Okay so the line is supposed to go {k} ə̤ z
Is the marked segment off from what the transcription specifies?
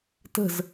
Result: yes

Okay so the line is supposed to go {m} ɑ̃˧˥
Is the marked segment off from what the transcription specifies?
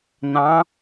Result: yes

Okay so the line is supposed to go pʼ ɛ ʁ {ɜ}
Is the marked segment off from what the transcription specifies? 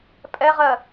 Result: no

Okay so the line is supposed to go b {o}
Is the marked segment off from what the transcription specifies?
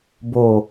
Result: no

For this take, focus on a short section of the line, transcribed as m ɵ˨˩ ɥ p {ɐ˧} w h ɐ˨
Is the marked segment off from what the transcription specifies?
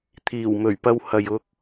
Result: no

